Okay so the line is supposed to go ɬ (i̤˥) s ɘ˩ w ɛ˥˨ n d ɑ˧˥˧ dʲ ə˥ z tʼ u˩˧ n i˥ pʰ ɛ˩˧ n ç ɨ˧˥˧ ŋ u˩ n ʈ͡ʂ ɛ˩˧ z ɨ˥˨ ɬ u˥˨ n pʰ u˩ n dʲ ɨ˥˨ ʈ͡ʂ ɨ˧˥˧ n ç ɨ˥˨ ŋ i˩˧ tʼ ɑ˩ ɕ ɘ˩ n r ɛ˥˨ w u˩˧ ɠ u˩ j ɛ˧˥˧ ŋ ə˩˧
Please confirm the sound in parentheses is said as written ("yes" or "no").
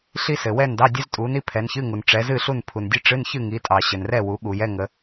no